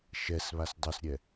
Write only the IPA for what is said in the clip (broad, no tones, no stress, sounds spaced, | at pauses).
ʃ ɛ s β a s dˤ ɵ s ɾʲ ɛ